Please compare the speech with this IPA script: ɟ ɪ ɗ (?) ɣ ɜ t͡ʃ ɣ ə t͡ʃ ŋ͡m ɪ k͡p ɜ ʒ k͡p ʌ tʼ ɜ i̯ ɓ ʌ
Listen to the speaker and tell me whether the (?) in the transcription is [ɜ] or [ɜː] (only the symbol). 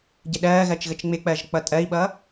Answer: ɜː